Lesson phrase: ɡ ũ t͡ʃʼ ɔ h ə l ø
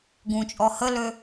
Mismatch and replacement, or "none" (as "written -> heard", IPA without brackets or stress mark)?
none